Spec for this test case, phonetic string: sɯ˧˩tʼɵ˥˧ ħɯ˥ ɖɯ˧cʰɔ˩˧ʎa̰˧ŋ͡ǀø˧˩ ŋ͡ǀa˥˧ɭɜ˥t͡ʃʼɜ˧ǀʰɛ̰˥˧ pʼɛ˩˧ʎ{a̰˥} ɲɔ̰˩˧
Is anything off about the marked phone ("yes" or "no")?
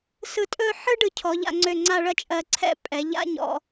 no